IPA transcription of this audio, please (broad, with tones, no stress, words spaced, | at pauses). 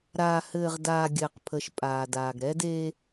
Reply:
ɾaː˨hɘː˨ʁdaː˨ ɡʲɘː˨qpʰə˨˦ʃpʼaː˨ daː˨ɡɾɛ˦deː˦